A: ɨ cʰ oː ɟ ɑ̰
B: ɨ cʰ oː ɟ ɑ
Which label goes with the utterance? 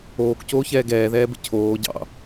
A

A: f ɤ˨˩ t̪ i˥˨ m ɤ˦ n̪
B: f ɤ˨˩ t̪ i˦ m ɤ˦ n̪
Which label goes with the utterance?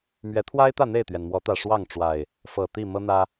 A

